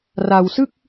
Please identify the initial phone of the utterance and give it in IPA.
r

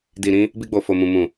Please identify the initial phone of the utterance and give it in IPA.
d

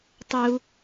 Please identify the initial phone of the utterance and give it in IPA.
tˤ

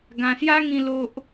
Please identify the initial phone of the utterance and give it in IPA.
ɡ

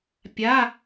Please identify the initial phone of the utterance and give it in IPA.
pʲ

